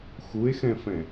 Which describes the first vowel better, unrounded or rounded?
rounded